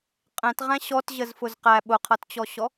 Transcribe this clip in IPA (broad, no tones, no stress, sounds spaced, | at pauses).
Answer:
qʼ ɛ̃ t ʁ æ̃ ɕ ɔ t ʑ ə z f ʊ z q æ ɓ ʊ qʰ ʌ t t͡ɕ ɔ ɕ ɔ